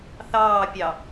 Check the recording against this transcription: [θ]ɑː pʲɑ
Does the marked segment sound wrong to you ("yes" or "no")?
no